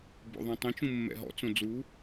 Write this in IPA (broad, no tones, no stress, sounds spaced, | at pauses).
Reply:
b o̰ ðˤ ɛ̃ tˤ ẽ t͡ʃ ũ mː ɛ̰ ɦ ɔ̰ t͡s õ d͡z u